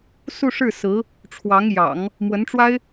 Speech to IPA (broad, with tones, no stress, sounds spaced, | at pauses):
s u˥˧ ʂ ɻ̩˥˩ s ɹ̩˧˥ | ʈ͡ʂʰ w ɑ˧˥ ŋ j ɑ̰˨˩˦ ŋ | m w ə˧˥ n ʈ͡ʂ w a˥ ɪ̯